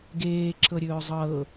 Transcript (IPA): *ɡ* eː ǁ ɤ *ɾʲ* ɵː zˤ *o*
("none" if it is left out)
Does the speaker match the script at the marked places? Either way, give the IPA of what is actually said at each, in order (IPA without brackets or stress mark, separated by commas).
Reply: ɡ, ɾʲ, ɤ